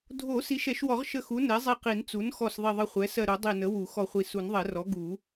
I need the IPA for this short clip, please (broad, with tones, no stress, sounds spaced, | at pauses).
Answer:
dʱ o˨˩˦ s i˩˥ ʃ ɛ˨˩˦ ʃ w ɔ˨˩˦ ʁ ʃ ə˧˩ x u˩˥ n ɛ˩˥ zˤ i˧˩ q i˨˩˦ n t͡s u˩˥ n x ɔ˧˩ s ðˤ i˧˩ ðˤ ə˧˩ χʷ ɛ˩˥ s ɜ˧˩ ɾ o˨˩˦ dˤ i˧˩ n ə˩˥ w u˨˩˦ x ɔ˧˩ χʷ i˧˩ s u˨˩˦ n ðˤ ɛ˨˩˦ r ɔ˩˥ ɡ u˨˩˦